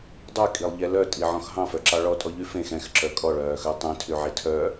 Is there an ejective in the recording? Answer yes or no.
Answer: yes